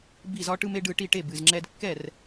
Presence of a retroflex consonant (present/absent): present